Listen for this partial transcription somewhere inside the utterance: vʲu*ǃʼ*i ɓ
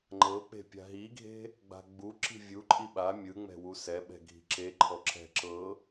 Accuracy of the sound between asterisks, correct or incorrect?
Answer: correct